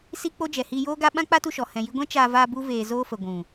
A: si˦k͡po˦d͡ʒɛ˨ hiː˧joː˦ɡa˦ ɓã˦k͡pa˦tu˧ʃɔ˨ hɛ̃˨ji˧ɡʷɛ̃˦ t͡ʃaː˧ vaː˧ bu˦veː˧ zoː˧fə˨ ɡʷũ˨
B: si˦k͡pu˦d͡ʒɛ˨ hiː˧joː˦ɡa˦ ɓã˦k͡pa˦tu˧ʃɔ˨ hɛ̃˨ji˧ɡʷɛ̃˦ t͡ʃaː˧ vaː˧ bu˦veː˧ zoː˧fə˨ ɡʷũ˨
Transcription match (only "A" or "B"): A